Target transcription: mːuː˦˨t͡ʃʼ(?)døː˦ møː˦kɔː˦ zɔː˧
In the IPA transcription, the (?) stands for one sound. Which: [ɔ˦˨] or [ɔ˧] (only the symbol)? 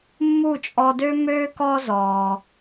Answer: ɔ˧